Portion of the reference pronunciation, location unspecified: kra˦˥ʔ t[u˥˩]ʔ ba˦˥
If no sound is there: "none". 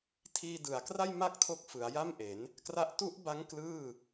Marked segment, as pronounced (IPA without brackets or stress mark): u˦˥